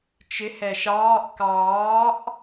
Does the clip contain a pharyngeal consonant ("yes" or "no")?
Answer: no